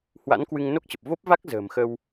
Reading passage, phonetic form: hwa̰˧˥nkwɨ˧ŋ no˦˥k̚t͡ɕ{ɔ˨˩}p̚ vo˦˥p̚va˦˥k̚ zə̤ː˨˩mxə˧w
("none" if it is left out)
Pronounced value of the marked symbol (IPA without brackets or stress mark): ə˨˩